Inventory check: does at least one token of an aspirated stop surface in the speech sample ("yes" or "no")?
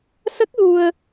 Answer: no